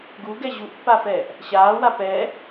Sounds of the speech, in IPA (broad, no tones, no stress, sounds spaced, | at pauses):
ɡ u ɡ ɛ ʑ u ʔ pː a f ɛː ʔ | ɕ aː w a p ɛː